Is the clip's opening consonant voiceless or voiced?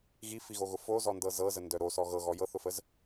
voiced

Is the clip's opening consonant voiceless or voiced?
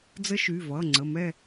voiced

